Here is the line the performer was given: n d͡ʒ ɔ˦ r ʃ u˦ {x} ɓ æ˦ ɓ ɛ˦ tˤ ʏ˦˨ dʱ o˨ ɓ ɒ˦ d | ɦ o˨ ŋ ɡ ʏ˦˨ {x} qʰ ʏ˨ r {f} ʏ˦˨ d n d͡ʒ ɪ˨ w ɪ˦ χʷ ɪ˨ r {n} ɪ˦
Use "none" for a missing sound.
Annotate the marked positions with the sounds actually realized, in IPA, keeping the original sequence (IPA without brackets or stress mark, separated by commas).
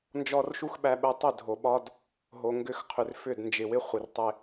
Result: x, x, f, tˤ